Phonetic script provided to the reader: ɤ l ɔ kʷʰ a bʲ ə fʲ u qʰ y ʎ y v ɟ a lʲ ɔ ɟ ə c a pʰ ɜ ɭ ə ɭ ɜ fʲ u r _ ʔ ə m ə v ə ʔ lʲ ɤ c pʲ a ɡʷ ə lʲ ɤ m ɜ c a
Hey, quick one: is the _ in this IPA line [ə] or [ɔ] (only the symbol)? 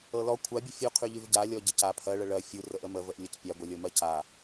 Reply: ə